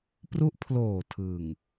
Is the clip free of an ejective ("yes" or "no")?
yes